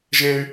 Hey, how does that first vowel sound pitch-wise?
high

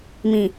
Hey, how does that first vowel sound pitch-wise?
low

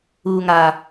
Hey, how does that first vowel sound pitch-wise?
low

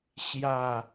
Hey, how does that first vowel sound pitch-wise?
falling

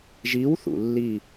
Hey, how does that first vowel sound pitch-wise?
rising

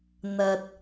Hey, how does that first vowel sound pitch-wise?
low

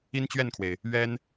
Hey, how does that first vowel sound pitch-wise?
high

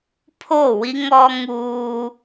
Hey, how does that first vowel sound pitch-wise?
falling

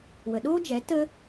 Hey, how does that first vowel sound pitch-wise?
low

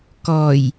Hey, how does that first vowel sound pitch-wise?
low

